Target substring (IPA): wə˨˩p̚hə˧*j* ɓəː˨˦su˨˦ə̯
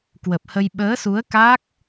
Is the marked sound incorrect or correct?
correct